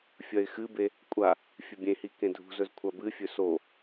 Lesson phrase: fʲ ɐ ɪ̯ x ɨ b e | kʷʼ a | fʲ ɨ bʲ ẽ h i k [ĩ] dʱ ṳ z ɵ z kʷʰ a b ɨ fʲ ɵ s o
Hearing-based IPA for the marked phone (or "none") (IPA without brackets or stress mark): ẽ